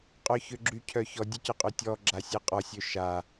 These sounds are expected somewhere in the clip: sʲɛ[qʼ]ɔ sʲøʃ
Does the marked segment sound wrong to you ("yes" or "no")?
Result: no